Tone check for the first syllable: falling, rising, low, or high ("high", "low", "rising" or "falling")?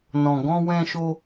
low